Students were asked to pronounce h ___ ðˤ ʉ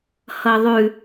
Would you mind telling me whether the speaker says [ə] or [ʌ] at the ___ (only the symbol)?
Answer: ʌ